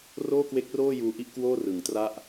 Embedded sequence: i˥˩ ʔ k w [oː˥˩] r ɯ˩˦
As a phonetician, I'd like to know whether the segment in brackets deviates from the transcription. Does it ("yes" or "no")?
no